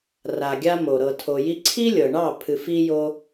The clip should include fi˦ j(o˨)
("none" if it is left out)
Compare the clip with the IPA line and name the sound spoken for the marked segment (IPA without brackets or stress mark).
o˦